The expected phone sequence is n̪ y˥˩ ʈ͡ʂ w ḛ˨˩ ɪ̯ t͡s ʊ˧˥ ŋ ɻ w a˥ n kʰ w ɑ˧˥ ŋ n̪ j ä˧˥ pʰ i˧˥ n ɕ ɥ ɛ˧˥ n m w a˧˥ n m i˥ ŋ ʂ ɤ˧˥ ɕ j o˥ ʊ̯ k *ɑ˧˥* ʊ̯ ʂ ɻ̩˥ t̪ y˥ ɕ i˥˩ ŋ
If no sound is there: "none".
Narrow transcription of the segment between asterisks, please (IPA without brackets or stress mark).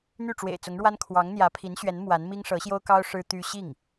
ɑ˥